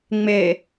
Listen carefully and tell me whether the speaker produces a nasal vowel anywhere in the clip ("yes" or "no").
no